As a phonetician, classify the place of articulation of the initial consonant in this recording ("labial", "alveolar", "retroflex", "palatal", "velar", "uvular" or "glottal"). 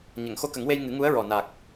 palatal